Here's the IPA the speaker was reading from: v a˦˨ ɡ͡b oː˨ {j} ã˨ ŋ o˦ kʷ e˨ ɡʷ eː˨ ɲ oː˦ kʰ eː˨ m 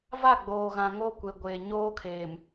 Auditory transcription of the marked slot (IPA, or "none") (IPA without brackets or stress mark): ɣ